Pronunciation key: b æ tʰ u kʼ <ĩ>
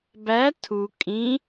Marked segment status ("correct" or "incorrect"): correct